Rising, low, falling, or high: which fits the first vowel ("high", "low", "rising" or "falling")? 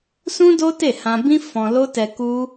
high